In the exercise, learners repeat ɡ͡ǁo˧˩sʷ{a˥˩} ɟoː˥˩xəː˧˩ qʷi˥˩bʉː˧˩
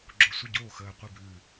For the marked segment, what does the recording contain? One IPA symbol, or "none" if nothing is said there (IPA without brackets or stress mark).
ə˥˩